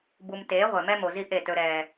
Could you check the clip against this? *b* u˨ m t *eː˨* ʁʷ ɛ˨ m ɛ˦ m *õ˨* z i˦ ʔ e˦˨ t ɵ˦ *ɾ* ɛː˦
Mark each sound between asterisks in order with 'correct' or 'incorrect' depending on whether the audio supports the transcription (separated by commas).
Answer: correct, incorrect, incorrect, correct